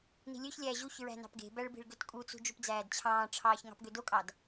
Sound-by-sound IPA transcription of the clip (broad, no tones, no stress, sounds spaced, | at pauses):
n i̤ lʲ ø ç lʲ æː ʑ u ç ɹ æ̤ n ɑ̤ p ɡ e̤ b æ ɭ b i̤ ɭ ɡ ø t kʼ u t͡s ṳ d͡ʒ u p d͡z æː d t͡ɕʰ ɑ̃ː ʈ͡ʂʰ ɑː ç ŋ ɑ̤ p ɡ ø d o kʼ ɑ d